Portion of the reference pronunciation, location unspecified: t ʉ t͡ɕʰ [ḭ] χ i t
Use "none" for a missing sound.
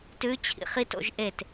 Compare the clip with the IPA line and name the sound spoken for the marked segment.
ḭ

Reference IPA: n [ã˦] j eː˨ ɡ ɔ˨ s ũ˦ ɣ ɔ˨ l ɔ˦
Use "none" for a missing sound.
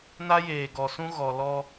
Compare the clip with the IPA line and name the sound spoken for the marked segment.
a˦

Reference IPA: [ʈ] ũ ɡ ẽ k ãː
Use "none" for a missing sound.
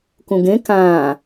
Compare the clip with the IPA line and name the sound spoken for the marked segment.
k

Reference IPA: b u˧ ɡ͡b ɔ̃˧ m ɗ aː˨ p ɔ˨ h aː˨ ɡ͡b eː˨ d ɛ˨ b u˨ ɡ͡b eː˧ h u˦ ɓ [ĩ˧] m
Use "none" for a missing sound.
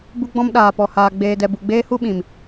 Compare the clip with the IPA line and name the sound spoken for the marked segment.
ĩ˨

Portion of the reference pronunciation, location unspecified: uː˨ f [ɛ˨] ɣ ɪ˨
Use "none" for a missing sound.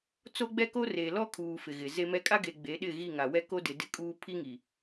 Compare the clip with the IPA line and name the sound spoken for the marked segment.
ɪ˨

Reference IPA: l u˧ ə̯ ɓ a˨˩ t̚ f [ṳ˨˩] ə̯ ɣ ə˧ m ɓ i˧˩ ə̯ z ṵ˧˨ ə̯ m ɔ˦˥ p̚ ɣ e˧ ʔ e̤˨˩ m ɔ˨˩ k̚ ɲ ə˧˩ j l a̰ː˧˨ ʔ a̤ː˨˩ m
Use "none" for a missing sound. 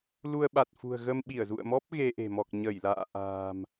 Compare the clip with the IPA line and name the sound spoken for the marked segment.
ṳ˨˩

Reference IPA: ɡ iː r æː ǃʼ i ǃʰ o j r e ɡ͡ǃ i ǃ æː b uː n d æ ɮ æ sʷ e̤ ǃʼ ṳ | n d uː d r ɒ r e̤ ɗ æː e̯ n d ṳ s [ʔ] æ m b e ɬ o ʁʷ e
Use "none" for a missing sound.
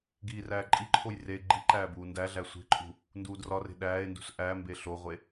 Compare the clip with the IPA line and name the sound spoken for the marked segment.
ʔ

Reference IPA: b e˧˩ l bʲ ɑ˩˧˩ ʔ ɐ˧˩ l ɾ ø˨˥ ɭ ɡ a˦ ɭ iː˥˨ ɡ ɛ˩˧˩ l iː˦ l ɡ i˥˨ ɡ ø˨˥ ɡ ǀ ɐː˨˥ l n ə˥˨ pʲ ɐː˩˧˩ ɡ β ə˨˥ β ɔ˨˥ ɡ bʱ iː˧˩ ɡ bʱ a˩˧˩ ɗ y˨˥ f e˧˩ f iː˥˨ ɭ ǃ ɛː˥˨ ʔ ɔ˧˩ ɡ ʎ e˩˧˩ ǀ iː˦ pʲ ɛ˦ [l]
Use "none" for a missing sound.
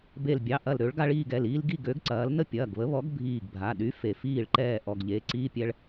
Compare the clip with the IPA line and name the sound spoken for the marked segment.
ɭ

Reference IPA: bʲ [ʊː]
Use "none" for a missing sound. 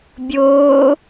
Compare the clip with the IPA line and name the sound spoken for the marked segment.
ʊː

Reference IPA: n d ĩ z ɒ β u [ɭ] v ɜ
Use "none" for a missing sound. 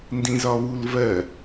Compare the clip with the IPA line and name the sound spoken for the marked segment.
l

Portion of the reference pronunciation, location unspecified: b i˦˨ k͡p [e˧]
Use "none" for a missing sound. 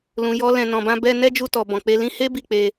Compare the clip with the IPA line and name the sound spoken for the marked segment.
e˧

